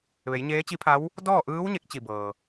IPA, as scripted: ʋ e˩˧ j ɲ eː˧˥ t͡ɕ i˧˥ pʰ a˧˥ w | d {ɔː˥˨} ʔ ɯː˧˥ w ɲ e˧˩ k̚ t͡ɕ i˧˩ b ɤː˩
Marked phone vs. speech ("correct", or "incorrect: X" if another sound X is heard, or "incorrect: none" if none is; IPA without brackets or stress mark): correct